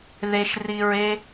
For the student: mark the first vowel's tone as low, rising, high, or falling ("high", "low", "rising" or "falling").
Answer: low